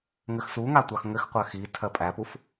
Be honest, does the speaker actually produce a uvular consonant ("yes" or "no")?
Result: yes